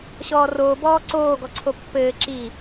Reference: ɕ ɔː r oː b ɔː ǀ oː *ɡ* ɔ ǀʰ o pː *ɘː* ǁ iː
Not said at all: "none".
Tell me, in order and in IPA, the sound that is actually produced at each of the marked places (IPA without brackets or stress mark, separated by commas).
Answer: ɡ, ɘː